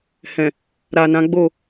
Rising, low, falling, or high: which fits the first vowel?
low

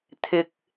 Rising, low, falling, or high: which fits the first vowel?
low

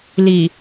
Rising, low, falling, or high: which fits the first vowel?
low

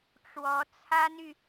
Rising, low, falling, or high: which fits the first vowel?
rising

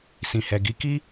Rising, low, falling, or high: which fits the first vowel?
low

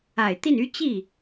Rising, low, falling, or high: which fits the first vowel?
low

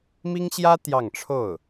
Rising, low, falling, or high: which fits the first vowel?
high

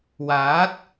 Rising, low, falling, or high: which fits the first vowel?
rising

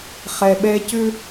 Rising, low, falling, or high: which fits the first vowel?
low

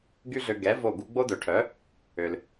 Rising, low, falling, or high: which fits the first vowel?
high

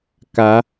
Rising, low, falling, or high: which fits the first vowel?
rising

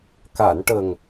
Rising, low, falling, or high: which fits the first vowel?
low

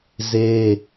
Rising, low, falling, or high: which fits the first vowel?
high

